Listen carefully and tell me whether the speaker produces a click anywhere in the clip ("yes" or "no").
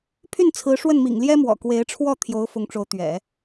no